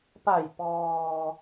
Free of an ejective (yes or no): yes